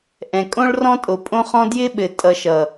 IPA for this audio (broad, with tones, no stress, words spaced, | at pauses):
ʔɛ̃˨kʼõ˦ɭrɔ̃˦ tʼo˨pʼõ˦χɔ̃˦ djɪ˦ ɓɘ˨tʼʌ˨ʃʌ˨